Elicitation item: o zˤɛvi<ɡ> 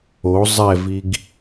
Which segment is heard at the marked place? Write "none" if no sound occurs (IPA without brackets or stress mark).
ɡ